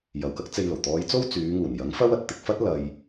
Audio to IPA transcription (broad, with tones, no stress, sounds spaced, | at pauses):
j ɐ˨ w k ɐ˥ k̚ t͡s e˧ j l o˨˩ w t̪ ɔː˨˧ j t͡s o˥ w t͡s yː˨˧ ŋ uː˨˩ n j ɐ˨˥ ŋ f ɐ˥ w ɐ˨ t̚ t̪ ɪ˧ k̚ f ɐ˥ t̚ l ɐ˨ j